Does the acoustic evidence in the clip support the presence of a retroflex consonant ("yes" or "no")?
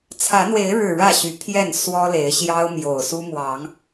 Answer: yes